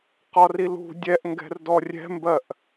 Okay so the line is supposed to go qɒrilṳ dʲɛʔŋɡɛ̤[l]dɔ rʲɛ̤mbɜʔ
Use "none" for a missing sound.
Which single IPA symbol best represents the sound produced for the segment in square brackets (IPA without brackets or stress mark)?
r